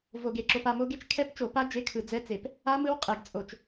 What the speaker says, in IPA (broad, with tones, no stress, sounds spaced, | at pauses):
v o˧˩˧ ɡ e˩ ǁ o˧ p a˧ m o˦˥ ɡ e˦˥ t͡ʃ kʰ ɛ˦˥ p t͡ʃ o˧˩˧ p a˦˥ d͡ʒ e˧˥˧ kʰ ɯ˧˩˧ d͡z ɛ˧˥˧ t͡s e˧˩˧ p | a˦˥ m ɯ˦˥ w qʼ ɛ˧˩˧ ɡ t͡sʼ o˧˩˧ t͡ʃ